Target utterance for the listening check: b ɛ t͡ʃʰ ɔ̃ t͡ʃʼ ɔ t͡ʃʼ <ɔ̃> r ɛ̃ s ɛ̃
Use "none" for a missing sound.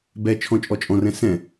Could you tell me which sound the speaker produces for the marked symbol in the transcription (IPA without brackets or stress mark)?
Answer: ɔ̃